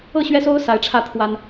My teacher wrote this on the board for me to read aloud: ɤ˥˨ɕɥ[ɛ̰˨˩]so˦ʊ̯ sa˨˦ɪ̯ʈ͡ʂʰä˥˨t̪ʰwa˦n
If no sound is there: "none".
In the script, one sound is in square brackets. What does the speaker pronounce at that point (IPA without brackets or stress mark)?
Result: ɛ˦